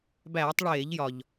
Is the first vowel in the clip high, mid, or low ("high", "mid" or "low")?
low